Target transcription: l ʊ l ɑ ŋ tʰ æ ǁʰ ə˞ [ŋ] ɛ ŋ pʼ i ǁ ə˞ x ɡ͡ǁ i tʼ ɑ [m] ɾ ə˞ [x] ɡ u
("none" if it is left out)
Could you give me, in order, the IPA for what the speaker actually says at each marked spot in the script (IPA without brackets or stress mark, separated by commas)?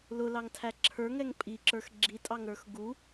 ŋ, ŋ, x